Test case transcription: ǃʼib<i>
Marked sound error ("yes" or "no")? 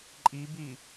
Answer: no